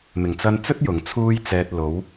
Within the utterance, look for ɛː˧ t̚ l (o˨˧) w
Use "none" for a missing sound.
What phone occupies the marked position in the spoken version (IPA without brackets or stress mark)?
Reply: o˨˧